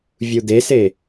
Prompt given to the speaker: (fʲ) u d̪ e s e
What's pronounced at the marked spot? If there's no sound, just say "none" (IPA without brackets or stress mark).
vʲ